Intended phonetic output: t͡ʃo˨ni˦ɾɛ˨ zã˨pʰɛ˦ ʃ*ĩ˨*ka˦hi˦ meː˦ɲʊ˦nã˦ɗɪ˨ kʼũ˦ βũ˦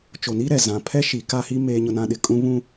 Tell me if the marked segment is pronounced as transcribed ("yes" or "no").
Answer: no